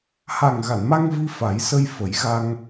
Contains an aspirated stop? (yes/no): no